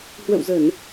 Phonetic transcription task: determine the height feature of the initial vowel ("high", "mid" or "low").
mid